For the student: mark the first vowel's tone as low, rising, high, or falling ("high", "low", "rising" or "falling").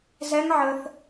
high